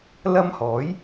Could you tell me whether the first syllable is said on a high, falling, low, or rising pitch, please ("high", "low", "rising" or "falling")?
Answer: high